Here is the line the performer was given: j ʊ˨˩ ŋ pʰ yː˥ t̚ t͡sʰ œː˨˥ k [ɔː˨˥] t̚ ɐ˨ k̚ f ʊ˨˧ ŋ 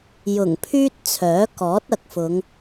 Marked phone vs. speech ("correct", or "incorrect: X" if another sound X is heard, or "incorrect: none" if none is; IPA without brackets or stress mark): correct